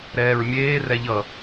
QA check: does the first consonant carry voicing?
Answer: yes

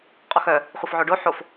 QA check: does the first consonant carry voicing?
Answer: no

